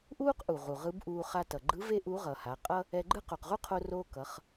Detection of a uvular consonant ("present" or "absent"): present